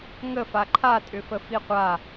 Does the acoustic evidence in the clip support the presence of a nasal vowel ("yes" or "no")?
no